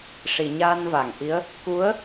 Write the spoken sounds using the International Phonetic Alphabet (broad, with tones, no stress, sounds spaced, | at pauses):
ʂ i˨˩˨ ɲ aː˧ n v a˨˩˨ ŋ ʔ i˧˥ ə̯ | k u˧˥ ə̯